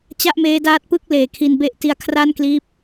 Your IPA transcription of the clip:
t͡ɕ a˥˩ ʔ m eː˦˥ d aː˦˥ t̚ p ɯ˥˩ k̚ l eː˨˩ kʰ i˧ n b e˦˥ ʔ t i˧ a̯ kʰ r a˥˩ n k l iː˦˥ p̚

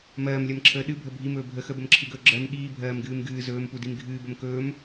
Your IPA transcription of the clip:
m ɜː m lʲ ɜ m ǁʰ əː ɗ ɨ bʱ ə bʱ i m ɵː bʱ ə x ə b ə m ǁʰ ɨ ɡ ɵː ɡ͡ǁ ɜ m ɠ iː bʱ ɜː m ɡ ɨː m ɡ ɨː z ɵː m p u d i m ɡʱ ɨː b ə m k ɵː m

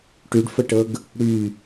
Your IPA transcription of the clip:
ʈ y ɖ f ə ʈ ɤ ɡ | ɽ y

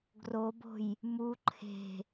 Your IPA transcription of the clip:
ɡ r o b o̤ j | m u ǃʰ e̤

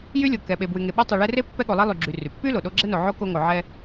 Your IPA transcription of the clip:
j y˥ lʲ o˨ k ɛ˨ ɓ e˨ b w y˨ ŋ e˨ ɓ e˦ tˤ y˨ ɭ ɛ˦ r e˥ pː ɛ˥ ɠ o˨ lˠ e˥ lˠ y˨ ɡ͡ǁ y˨ r y˩ pː y˥ l o˩ ɗ o˦ ɡ͡ǁ ɛ˥ n o˨ ʕ o˥ k o˦ ŋ o˨ ʕ ɛ˦

